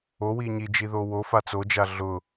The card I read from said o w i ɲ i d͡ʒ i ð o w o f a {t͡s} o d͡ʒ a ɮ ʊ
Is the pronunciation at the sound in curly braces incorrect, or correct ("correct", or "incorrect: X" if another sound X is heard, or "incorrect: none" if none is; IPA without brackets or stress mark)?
correct